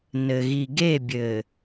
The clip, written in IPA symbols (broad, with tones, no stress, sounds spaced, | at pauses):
n ɘ˨ ɣ i˨ ɡ e˦˨ bʲ ɘ˨